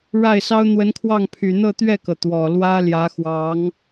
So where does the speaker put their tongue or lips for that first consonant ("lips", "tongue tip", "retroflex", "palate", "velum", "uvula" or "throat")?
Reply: retroflex